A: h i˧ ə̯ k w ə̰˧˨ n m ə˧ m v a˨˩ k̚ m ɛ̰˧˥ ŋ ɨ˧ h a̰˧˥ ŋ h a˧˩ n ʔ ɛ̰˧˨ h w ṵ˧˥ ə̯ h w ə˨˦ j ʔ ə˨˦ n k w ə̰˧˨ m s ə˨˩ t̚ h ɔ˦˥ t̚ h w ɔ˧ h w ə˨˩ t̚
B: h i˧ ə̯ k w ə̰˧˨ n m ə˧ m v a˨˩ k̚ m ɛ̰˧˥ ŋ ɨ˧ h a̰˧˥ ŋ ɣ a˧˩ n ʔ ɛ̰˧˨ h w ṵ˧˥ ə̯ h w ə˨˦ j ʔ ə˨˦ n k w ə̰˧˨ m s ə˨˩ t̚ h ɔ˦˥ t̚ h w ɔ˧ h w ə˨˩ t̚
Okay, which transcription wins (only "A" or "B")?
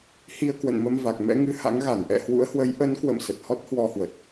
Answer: B